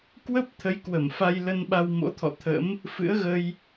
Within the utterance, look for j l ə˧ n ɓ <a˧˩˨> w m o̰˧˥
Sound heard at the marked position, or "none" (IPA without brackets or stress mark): a˧